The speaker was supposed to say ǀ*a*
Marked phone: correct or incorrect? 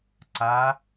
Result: correct